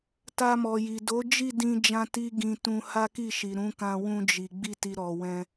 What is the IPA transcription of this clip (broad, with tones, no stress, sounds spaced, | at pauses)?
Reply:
t a˧ m ɔ˨ j i˨ d o˨˦ d͡ʒ i˦˨ d ĩ˧ d͡ʒ ã˧ t i˦ ɡ ĩ˧ t ũ˧ h a˦ k i˦˨ ʃ i˨ ɾ ũ˨˦ k ã˧ w ũ˧ d͡ʒ i˨ ɡ͡b i˧ t i˨ ɾ ɔ˨ w ɛ̃˧